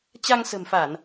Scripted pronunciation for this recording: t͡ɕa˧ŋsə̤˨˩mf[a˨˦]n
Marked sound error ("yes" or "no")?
yes